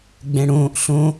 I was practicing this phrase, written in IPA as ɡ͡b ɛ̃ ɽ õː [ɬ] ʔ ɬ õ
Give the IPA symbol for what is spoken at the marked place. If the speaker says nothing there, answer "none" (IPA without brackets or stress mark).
none